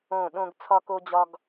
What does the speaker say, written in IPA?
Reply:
õ˦˨ ɗ õ˦ ɡ t͡sʰ ɒ˦ k o˦ d͡ʑ ɒ˦ ɡ

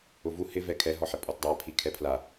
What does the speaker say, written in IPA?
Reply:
ʊ v u h ɪ v ɛ kʰ ɛ ɦ ɔ ħ ɪ pʼ ɔ t dˤ a pʰ i kʰ ɛ pʰ l a

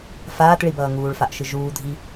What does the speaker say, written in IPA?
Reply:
f aː t ɭ i b ʌː ŋ uː ɭ f a ʔ ʃ ɯ ʒ uː dʱ i

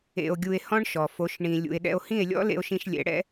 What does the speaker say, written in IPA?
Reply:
ḛ˧ o̯ ɡʲ u˧ e̯ h ɔ̃˦ ɳ ʃ ɔ˨ f o˨˦ ʃ ɳ ĩ˨ lʲ ṵ˨ e̯ ɗ ɛ̰˧ o̯ h ĩ˦˨ e̯ lʲ ɔ̰˦ l ḛ˧ o̯ ʃ ĩ˧ ʃ lʲ ɛ̰˨˦ ɽ ɛ̰˦

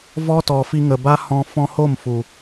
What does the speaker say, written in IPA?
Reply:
v ɔ˦ t ɔ˨ f i˧ ŋ ə˨ b a˦ h ɔ̃˧ f ɔ̃˧ h o˦˨ m f u˨

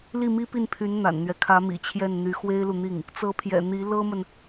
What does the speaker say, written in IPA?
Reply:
l i˥˩ m i˥ p i˥˩ n pʰ y˧˥ n n̪ a̰˨˩ n n̪ ɥ ɛ˦ kʰ ä˧˥ m ḭ˨˩ t͡ɕʰ j ɛ˥˩ n n̪ y˧˥ x w e˥ ɪ̯ l u˨ n̪ i˥˩ ŋ | t͡s ɤ˧˥ pʰ j ɛ̰˨˩ n̪ i˧˥ l ɤ˥ m ə˨ n

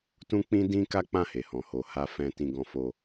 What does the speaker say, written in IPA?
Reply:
t ũ˦ k͡p ĩ˦ d ĩ˦ k a˦ k͡p ã˦˨ h e˨ h ɔ̃˨ h o˨ h a˧ f ɛ̃˧ t ĩ˧ ɡ ɔ̃˧ f o˧

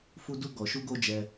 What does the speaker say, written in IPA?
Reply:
f u˧ d u˧ ɡ ɔ˨ ʃ u˧ ɡ o˧ d͡ʒ ɛ˧

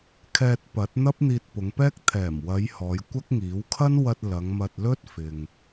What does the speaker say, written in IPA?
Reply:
kʰ ɛː˧ t̚ p ɐ˨˥ t̚ n̪ ɐ˥ p̚ n̪ iː˧ t̚ p ʊ˨˧ ŋ p ɛː˥ k̚ t̪ʰ ɛː˨˩ m w ɐ˨˧ j h ɔː˨˧ j kʷ ɐ˥ k̚ ŋ iː˨˥ w kʰ ɐ˥ n w ɐ˧ t̚ l ɐ˨˧ ŋ m ɐ˧ t̚ l ɵ˥ t̚ f ɪ˨ ŋ

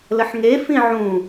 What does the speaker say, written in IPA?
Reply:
l ə ħ ŋ e f ĩ ʕ ũ

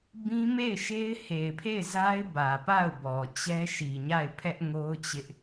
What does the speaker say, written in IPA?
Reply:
b ĩ˦ m e˦˨ ɪ̯ ʃ e˦ ɪ̯ h e˨ ɪ̯ pʰ e˦˨ ɪ̯ z a˦ ɪ̯ b ä˨ p a˦˨ ʊ̯ b ɔ˨ t͡ɕ ɛ˦ ʃ i˨ ɲ a˦˨ ɪ̯ pʰ ɛ˦ ʔ ŋ o˦ ʊ̯ t͡ɕ ɪ˦ ʔ

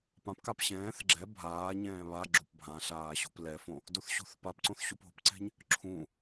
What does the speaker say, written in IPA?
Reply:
p ã p k a p ɕ ɛ̃ː θ ɡ͡ǁ ɛ bʱ aː ɲ ɛ̃ː β a ɡ͡ǁ o p bʱ ã ɬ aː ɕ o̤ p l ɛ f õ | d o θ ɕ o̤ θ p a p ǀ õ θ ɕ u p o̤ p ǀ ɛ̤ ɲ | ǁʰ ũ

